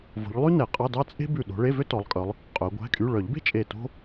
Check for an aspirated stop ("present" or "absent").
absent